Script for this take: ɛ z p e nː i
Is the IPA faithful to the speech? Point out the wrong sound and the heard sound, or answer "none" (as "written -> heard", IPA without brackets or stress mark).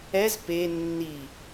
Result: none